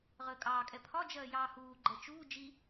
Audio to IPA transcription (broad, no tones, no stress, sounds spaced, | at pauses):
ʁ əː kʼ ɑː kʼ ɛ pʰ ɒ d͡ʒ ɜː j ɑː h uː ɡ͡ǃ ɜ t͡ʃ uː d͡ʒ i